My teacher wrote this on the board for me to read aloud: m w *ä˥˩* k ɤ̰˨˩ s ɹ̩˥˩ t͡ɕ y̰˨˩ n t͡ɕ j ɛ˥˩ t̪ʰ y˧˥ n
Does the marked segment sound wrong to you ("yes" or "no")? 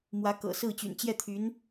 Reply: yes